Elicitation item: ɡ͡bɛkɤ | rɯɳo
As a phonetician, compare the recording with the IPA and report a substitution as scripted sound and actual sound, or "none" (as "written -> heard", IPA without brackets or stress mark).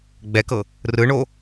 none